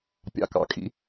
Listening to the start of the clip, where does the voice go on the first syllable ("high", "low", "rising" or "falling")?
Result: low